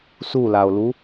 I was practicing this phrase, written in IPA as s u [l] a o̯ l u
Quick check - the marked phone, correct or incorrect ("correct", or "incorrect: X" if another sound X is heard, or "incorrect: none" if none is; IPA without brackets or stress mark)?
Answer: correct